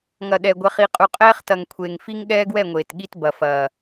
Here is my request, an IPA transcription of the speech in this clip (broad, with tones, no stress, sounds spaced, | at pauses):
ŋ ɐ˨ ɗ ɛ˨ ɡʷ ɛ˨ χ i˨ qʼ u˨ qʼ ɛː˦ χ t ɐ˨ ŋ kʷʰ eː˨ ŋ f i˦ ŋ ɠ ɛː˦ ɡ w ɛ˦˨ ŋʷ eː˨ t ɠ i˦ t b ɐ˨ f ɐː˨